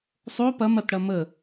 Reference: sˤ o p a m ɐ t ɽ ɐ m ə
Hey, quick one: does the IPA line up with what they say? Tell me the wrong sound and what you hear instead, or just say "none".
a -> ɐ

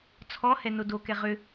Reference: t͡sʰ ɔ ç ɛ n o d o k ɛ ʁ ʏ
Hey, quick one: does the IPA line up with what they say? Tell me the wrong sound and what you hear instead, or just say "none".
ç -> h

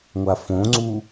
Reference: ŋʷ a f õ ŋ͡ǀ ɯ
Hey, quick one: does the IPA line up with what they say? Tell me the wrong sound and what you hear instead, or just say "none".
ɯ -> u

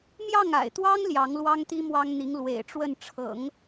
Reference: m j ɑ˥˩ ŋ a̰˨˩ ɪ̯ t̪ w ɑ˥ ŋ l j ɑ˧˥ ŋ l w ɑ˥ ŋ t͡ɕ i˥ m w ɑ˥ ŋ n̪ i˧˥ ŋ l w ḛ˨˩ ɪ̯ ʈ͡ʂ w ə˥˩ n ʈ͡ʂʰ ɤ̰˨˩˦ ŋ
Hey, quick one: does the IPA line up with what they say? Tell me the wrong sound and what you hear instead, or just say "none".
t͡ɕ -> t̪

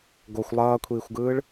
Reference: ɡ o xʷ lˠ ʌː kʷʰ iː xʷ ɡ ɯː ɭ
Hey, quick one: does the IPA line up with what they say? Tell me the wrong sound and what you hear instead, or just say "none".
none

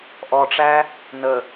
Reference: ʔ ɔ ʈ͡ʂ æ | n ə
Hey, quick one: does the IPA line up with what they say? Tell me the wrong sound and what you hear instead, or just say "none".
none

